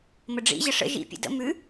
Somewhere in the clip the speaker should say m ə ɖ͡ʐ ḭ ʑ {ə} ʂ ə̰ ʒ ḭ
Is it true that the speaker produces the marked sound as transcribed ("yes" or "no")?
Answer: yes